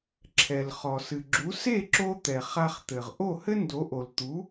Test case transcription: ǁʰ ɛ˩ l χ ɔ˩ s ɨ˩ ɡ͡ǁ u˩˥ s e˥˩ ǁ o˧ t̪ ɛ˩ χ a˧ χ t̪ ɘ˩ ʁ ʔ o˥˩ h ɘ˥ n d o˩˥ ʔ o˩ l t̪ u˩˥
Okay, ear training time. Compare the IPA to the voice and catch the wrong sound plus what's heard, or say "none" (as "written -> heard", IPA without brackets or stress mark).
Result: none